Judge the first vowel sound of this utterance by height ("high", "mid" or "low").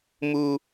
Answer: high